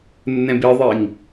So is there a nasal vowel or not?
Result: yes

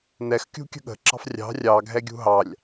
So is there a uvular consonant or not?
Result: no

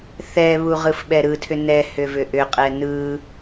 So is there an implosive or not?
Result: yes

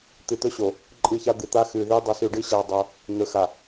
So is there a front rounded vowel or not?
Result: no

